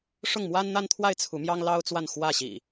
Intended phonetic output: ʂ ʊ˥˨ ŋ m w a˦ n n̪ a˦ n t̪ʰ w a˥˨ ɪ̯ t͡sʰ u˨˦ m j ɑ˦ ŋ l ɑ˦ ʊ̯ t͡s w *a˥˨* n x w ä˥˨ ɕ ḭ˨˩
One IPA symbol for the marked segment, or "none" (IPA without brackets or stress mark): a˥˨